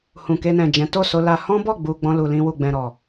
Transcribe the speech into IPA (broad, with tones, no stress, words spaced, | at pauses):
hũ˨ke˧nɛ̃˨d͡ʒɛ̃˨˦ to˦˨so˧la˧ hɔ̃˦bɔ˦˨ɡ͡bu˨ ɡ͡bɔ̃˧lu˨lĩ˧wu˨ ɡ͡bɛ̃˨ɾɔ˨